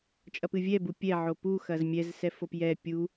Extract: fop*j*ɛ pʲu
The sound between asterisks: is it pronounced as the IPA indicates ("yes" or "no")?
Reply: yes